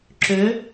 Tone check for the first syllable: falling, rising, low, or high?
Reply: rising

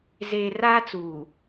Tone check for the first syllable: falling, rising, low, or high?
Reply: low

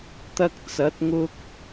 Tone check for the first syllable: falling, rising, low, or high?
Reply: high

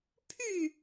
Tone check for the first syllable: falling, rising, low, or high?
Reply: falling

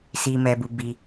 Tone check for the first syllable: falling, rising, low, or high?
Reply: low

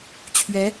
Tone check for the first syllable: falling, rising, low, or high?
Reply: rising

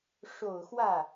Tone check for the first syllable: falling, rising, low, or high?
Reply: low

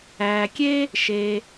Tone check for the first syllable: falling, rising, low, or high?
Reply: low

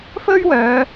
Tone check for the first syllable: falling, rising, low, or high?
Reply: high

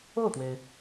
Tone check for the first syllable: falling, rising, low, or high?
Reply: falling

